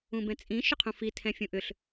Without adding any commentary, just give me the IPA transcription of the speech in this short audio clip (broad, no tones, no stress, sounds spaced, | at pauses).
ũ b ɛ̃ t͡sʼ ĩ ʃ ʏ qʰ ũ f i tʰ ɛ̃ fʲ ũ ʔ ʏ ɬ